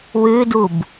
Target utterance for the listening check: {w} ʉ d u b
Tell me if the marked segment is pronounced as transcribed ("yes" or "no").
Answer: yes